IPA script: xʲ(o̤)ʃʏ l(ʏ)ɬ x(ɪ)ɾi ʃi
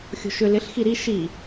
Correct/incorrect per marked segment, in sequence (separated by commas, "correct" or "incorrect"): correct, incorrect, incorrect